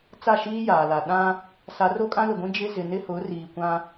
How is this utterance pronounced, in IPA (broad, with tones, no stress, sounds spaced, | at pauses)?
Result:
t͡s a˦˨ ʃ iː˦ j aː˨ l a˨ ɗ ã˦ | s a˨˦ r o˦ kʼ ã˦ l ʊ˨ ɡʷ ĩ˦ d͡ʒ ɪ˦ z ɪ˨ n ɪ˦ h ʊ˨˦ r iː˨ kʷ ã˦